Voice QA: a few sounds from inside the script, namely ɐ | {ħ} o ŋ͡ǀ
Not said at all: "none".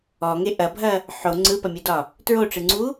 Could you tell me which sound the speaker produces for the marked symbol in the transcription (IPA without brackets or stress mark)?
ħ